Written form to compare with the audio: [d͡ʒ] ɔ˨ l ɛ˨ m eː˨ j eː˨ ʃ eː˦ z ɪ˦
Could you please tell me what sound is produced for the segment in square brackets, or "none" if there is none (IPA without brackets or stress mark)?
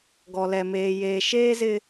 ɡ